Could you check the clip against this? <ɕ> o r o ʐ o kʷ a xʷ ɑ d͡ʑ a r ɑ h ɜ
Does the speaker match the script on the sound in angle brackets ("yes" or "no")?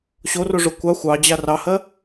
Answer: yes